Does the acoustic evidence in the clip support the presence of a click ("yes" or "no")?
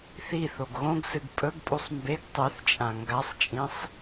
no